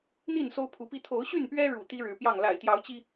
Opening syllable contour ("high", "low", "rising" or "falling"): falling